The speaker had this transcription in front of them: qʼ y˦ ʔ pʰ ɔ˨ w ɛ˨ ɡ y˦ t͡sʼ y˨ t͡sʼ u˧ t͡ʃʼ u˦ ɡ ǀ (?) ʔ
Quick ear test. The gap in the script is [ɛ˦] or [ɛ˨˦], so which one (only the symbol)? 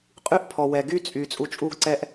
ɛ˦